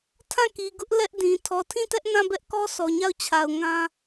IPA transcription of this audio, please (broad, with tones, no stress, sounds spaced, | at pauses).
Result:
tʰ ã˦˨ k i˨ ɡ ʊ˦ ʔ l ɛ˦ ʔ d ĩ˨ tʰ ɔ˨ tʰ ĩ˦˨ t ɛ˦ ʔ n ã˦˨ b ɛ˦ ʔ k ɔ˦ sʰ ɔ˨ ɲ a˦˨ ʊ̯ t͡ɕʰ a˨ ʊ̯ ŋ ã˦